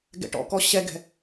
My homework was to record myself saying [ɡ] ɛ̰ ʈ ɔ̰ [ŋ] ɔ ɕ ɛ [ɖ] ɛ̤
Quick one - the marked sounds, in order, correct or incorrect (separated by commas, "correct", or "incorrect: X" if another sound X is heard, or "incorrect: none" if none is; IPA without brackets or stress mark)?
correct, incorrect: k, incorrect: ɡ